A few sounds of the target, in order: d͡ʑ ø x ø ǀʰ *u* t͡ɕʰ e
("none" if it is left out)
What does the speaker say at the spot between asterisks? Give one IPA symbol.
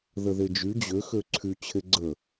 y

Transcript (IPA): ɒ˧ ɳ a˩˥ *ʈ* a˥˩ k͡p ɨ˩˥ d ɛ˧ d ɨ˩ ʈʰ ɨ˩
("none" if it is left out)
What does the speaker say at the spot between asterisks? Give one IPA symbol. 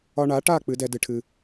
ʈ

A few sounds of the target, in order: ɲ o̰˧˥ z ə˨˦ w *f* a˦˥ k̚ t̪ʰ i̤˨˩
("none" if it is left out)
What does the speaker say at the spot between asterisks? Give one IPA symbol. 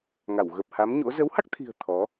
h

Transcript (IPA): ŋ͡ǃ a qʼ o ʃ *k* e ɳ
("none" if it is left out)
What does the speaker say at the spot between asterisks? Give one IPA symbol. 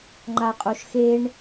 x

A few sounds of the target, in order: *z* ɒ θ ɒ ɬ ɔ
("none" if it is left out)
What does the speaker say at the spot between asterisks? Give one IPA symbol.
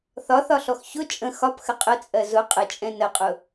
θ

